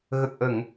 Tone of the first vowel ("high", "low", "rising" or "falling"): low